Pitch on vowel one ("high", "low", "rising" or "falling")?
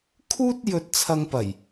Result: high